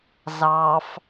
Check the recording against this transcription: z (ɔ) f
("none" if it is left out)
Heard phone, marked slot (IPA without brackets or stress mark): ɑ